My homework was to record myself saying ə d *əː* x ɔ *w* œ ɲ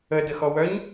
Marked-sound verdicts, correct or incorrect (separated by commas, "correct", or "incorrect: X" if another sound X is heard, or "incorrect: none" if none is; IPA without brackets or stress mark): incorrect: ə, correct